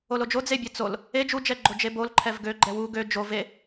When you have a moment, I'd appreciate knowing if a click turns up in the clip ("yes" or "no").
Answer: yes